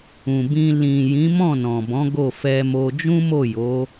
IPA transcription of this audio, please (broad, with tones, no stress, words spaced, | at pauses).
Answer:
ũ˨bĩ˧ lĩ˨ jĩ˨˦mɔ̃˦˨nɔ̃˨bɔ̃˨˦ ɡo˦˨fɛ˧mo˧ d͡ʒũ˦mo˦˨jo˨˦